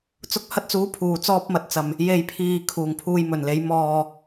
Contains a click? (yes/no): no